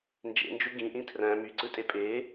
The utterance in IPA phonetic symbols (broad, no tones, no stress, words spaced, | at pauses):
nd͡ʒḛnd͡ʒu ɡĩʔĩ tʰræ̃ myǀɯtʼe pʼe